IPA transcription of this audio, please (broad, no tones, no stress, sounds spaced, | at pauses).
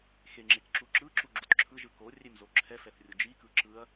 x e ŋ͡ǁ e k ǁ u ǁ ɯ ǁ u ɡ͡ǁ u t ǁʰ ɯ ʒ ɯ k o rʲ e m z o ǁʰ ɛ f ɛ θ rʲ u d͡ʒ i k ɯ ǁ ɯ ɐ̯